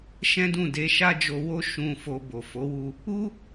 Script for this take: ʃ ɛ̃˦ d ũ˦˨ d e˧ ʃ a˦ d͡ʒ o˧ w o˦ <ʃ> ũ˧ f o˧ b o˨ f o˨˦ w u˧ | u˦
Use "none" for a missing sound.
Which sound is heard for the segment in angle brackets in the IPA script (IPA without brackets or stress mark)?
ʃ